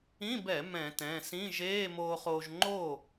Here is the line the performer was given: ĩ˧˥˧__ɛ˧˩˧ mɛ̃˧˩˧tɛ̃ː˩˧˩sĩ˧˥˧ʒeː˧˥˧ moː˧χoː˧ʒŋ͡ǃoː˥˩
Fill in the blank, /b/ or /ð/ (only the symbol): b